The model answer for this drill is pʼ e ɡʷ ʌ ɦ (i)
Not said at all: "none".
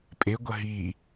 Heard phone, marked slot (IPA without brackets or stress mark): i